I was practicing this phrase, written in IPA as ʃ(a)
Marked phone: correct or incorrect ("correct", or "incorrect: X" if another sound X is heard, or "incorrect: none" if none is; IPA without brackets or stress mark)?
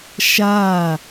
correct